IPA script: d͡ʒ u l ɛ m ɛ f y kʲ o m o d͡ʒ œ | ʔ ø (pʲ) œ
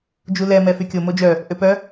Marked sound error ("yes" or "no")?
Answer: yes